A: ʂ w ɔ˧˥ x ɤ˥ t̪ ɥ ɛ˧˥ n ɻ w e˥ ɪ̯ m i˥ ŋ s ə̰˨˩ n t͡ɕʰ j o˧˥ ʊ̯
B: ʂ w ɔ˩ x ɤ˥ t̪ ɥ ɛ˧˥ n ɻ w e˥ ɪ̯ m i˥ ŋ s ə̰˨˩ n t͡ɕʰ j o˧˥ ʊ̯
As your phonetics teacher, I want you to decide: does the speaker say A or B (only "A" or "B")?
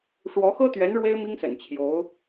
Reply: A